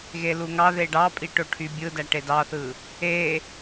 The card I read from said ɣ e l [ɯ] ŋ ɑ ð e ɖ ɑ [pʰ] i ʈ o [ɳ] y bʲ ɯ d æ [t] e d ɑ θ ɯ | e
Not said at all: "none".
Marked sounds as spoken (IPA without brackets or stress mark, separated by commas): u, pʼ, ʈʰ, ʈ